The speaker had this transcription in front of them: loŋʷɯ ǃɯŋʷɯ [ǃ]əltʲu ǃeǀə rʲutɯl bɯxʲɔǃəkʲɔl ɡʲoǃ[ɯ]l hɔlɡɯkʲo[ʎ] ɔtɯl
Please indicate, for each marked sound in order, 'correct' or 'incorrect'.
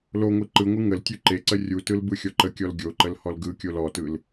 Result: incorrect: ŋ, incorrect: ə, incorrect: l

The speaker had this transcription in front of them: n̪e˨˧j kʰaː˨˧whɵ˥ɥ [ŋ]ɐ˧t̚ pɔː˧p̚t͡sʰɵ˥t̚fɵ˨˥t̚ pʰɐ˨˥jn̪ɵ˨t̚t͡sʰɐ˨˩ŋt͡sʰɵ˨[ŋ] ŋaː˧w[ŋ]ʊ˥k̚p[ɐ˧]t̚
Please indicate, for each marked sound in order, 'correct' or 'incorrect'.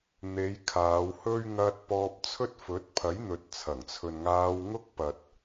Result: correct, incorrect: n, correct, incorrect: ɐ˨

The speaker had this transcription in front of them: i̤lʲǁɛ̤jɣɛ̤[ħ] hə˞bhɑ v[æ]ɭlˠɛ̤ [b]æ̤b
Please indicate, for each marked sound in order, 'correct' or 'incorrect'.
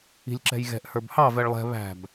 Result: incorrect: ʔ, incorrect: ɛ, incorrect: β

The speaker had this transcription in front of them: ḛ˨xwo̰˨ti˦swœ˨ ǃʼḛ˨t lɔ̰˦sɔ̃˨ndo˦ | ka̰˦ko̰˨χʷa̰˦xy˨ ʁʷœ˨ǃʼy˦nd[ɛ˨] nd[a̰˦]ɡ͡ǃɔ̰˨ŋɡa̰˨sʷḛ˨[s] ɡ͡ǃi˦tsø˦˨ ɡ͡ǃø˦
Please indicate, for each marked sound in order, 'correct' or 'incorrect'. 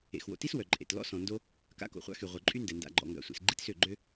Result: correct, incorrect: a̰˨, correct

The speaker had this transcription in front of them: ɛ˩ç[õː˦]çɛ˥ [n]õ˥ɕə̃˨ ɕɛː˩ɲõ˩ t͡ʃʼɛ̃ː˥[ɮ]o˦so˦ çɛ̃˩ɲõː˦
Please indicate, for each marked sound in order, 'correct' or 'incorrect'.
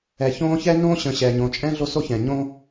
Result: correct, correct, correct

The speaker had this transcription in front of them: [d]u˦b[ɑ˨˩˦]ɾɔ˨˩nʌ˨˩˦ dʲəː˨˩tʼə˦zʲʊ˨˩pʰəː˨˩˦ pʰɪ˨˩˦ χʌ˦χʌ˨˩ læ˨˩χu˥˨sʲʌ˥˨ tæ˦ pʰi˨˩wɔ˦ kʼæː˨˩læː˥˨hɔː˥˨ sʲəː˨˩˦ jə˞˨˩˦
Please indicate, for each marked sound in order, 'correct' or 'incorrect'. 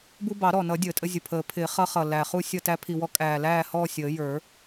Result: incorrect: b, correct

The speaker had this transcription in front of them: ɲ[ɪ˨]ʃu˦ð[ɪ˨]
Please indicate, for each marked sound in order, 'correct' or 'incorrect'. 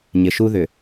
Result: correct, incorrect: ʏ˨

